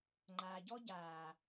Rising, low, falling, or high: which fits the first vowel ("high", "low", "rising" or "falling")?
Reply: low